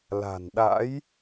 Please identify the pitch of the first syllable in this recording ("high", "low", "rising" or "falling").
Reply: low